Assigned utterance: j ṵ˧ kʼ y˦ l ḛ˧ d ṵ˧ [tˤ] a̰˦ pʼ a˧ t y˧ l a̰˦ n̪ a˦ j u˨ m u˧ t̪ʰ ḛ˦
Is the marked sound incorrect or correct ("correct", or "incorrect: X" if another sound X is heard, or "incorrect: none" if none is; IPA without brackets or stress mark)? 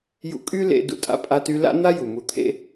incorrect: tʼ